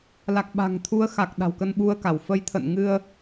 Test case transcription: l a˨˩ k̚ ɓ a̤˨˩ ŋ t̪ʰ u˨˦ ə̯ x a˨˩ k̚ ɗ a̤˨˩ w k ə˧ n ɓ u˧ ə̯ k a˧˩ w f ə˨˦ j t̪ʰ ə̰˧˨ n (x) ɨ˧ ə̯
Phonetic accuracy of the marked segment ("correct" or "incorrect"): incorrect